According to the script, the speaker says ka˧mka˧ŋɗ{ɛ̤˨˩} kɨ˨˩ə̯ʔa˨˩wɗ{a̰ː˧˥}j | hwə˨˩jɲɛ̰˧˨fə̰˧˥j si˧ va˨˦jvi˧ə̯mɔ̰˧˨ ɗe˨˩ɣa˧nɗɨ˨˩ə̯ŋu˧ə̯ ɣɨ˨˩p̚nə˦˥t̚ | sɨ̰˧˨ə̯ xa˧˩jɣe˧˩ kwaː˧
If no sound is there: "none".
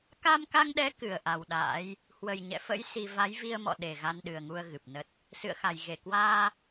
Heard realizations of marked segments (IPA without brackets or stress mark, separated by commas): ɛ˨˦, a̰ː˧˥